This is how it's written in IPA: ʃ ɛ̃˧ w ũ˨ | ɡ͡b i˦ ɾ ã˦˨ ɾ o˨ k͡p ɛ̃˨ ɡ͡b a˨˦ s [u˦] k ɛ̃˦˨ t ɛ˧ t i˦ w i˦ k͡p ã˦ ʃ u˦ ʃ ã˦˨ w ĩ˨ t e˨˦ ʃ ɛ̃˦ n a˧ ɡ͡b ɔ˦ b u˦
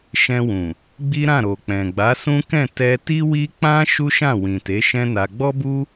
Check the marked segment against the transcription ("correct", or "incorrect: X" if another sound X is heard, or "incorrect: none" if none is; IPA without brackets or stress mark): incorrect: ũ˦